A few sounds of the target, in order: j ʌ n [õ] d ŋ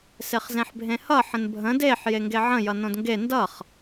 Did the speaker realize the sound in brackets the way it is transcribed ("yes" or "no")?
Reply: yes